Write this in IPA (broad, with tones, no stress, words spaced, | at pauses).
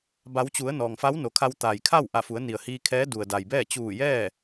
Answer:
ba˩˧wt͡ɕu˩˧ə̯ nɔː˩ŋfa˧˥wno˩kʰa˧w t̪aː˩jkʰa˥˨wʔa˧˩fu˩˧ə̯ ni˩ə̯hiː˧kʰɛː˧˥ du˩ə̯da˩jbɛː˥˨ t͡ɕuː˧˩jɛː˥˨